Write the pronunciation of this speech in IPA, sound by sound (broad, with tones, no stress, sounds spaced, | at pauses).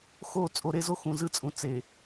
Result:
x o˦˨ t͡sʼ o˨ ɾ e˦ z o˦ x ũ˨ z ɯ˦ t͡sʼ ũ˨ t͡s e˨